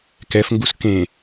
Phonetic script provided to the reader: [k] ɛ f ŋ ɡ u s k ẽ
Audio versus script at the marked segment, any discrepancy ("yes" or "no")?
no